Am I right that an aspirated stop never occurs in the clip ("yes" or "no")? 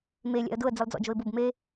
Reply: yes